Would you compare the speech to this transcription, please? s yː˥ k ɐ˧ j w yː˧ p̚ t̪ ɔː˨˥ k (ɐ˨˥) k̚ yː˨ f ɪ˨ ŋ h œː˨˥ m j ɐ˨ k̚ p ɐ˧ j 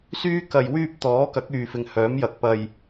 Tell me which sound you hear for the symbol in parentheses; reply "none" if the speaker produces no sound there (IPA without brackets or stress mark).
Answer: ɐ˨˥